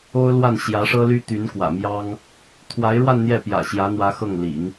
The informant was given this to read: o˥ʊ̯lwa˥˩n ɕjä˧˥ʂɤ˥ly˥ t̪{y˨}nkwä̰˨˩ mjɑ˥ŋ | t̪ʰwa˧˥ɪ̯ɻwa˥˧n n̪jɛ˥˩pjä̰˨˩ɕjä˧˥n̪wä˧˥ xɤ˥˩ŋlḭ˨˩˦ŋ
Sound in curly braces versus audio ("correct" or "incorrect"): incorrect